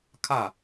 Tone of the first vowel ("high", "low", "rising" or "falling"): falling